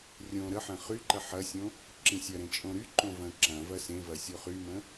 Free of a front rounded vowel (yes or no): no